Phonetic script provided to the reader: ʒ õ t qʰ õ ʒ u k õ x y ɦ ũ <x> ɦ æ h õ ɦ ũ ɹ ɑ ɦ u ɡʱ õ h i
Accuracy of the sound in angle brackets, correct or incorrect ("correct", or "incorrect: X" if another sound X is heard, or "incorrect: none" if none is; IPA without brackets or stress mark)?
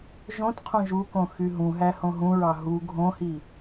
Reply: incorrect: none